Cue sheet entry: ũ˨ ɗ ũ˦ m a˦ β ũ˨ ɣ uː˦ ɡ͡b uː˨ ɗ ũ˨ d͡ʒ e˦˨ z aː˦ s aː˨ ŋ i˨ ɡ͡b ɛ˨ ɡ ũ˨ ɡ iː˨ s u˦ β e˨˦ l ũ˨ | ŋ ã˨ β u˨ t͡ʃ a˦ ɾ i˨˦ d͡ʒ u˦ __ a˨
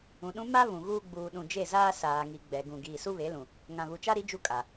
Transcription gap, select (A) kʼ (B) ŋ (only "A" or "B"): A